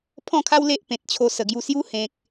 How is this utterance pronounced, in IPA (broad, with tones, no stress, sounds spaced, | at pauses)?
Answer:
pʰ ɔ̃˥˧ kʰ a˦ w l e˦ ʔ p ẽ˨ t̚ t͡ɕʰ o˧ s ə˨˩ ɡ j u˧ s j u˦ h ẽ˨ k̚